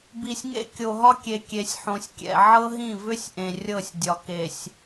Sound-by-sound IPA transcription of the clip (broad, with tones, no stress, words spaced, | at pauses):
bi˨sʲŋḛ˦ kʲo˨ɦɒ˦kʲe˨ kʲe˨sʲħõ˨sʲkʲɛ̰˨ ʕɤ˦ɦĩ˦˨vʏ˦sʲ ʔẽ˨rʲɤ˦˨sʲdʲɒ˨ ke˨sʲ